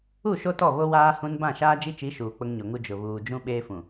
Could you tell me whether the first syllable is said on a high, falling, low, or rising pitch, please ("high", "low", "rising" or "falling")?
falling